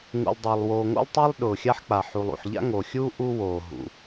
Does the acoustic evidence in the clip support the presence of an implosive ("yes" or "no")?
yes